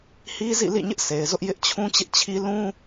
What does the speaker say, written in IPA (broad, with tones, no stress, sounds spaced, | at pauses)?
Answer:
h i˦ z ḭ˦˨ l ḭ˦˨ ɲ ɪ˦ ʔ s e˨ ɪ̯ z ʊ˦ ʔ j ɪ˦ ʔ t͡ɕʰ ũ˦ t͡ɕ ɪ˦ ʔ t͡ɕʰ i˦ l ũ˦